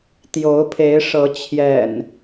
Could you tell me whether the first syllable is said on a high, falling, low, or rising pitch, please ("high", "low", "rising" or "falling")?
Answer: rising